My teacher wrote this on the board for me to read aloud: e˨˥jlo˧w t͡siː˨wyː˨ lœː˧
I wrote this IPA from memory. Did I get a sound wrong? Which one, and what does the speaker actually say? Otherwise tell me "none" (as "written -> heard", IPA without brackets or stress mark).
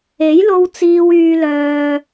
none